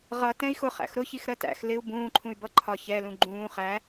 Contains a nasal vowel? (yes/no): yes